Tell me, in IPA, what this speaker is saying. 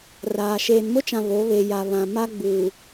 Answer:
r aː˨ ʃ eː˨ n m ʊ˦ t͡ʃ ã˨ β o˨˦ β e˨ j a˨ β ã˨ m a˦ ɡ͡b uː˨

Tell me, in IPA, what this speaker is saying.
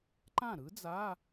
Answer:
ǃ ã˥˩ ɾ ɯ˧˥ d͡z a˧˥˧

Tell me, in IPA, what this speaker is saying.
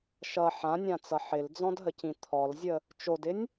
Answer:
ʃ ʌ ħ ã nʲ ã t͡s ʌ ħ ɪ l d͡z ɔ̃ d ɦ ə c ĩ t̪ʰ ɔ l zʲ ə | t͡ʃ o d ɪ nʲ

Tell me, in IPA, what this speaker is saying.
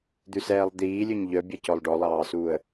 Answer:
d̪ ʉ s ɛː lˠ d̪ iː lʲ ø ɲ ʎ œ bʲ ɛ c ɔ lˠ ɖ ɔ lˠ ɑː s uː ə̯

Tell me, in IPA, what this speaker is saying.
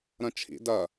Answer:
ɾ ɐ̃ t͡ʃʰ ḭ d ɐ

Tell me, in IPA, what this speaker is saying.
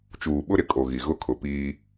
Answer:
t͡ʃ uː˨ ɓ ʊ˦ ɾ ɪ˨ kʼ o˨ ɣ i˨ ɣ ʊ˦ kʰ ʊ˨ p iː˦

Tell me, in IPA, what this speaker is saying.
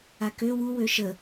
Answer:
a k ø w u w ø ʃ ə

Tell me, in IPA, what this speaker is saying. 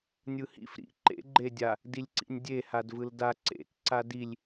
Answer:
nʲ ɯ h ḭ f ɾ ḭ ǃ ḛ ɡ͡ǃ e dʲ a | d i lʲ ǀ ḭ nʲ dʲ e h a d v ɯ l d a ǀ ḛ t ǀ a d i lʲ

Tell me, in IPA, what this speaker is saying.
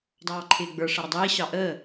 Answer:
dˤ ɑː ǃʰ ɪː ɡ͡b ə˞ ʂ ʌ ɾ ə dˤ iː ɕ ɑ ʔ əː

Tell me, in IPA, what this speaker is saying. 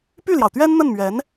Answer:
p y˥˩ l j ɑ˩ ʊ̯ t̪ ɥ ɛ˥ n n̪ ə˥˩ n m ɥ ɛ˧˥ n

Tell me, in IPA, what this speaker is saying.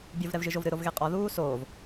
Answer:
bʲ o v ɾ ɛ v ʒ ɨ ʒ o v ɾ ɨ ɾ o v ɣ e qʼ ɔ ð uː s oː v

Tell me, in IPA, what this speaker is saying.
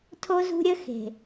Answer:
tʰ o˦ z ṳ˦ ɾʲ ə˦ x e̤˨

